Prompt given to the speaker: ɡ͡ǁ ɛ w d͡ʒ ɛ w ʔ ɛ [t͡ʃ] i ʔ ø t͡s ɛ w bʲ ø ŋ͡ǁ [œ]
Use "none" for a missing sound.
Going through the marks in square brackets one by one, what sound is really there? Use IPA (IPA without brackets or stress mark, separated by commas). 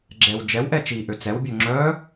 t͡ʃ, œ